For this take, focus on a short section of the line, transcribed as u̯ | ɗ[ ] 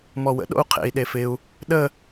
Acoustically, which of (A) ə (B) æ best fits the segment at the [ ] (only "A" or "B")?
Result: A